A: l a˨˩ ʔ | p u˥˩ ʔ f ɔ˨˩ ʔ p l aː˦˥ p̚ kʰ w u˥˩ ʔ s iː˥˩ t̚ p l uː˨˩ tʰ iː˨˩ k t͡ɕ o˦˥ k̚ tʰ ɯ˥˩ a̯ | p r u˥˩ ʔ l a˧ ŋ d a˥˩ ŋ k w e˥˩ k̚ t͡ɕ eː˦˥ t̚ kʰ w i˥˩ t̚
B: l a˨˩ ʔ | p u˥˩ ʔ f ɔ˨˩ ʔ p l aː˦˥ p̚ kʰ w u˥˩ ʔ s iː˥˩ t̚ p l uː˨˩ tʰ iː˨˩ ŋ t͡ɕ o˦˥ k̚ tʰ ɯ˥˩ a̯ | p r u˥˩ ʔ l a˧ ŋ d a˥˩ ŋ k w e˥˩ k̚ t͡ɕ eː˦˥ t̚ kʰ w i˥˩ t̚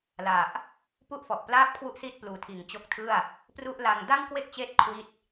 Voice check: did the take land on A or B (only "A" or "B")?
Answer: B